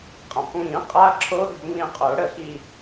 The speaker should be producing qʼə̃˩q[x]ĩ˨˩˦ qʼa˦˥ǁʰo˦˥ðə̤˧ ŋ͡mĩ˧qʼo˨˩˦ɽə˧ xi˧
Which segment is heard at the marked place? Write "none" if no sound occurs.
ŋ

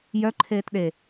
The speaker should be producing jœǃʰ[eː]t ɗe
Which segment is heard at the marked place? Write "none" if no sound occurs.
eː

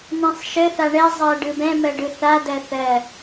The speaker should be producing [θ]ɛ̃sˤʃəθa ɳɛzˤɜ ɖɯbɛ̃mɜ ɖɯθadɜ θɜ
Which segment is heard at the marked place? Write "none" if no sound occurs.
n̪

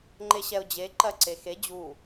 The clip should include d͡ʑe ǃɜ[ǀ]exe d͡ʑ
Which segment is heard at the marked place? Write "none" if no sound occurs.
ǀ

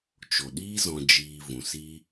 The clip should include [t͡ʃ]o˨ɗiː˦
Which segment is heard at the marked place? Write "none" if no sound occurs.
t͡ʃ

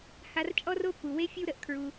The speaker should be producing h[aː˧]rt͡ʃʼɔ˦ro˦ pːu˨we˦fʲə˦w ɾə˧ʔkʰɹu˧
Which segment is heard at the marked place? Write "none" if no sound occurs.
a˧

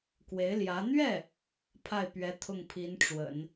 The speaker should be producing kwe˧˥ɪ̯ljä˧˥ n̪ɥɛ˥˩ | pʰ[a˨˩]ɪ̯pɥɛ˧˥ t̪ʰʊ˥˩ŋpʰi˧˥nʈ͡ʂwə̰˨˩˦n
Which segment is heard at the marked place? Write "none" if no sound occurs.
a˥˩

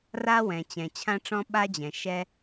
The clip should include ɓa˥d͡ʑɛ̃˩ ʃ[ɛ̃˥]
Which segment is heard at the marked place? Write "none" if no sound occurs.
ɛ˥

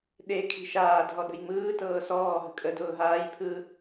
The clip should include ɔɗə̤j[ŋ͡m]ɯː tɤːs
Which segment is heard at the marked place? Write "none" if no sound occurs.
ŋ͡m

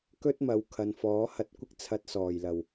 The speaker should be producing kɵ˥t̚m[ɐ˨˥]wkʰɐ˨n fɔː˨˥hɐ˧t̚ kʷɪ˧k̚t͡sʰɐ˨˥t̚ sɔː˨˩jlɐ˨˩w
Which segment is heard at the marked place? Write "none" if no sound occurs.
ɐ˨˥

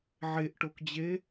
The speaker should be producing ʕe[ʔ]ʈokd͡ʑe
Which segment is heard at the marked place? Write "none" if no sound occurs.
ʔ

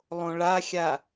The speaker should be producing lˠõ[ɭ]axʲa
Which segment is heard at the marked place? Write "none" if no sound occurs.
ɭ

